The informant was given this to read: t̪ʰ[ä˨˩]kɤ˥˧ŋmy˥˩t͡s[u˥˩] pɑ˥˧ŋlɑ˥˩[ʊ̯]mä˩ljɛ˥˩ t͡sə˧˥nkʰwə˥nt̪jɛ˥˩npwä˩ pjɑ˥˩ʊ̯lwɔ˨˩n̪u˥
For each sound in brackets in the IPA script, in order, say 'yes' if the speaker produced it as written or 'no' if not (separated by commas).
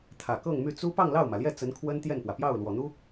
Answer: yes, no, yes